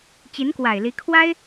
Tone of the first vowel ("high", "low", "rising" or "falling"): rising